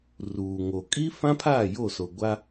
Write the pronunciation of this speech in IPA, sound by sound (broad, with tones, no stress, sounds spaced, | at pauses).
r uː˨ ŋ o˨ kʼ iː˦ f ã˦ pʰ aː˦˨ j o˦˨ s o˨ ɡʷ a˦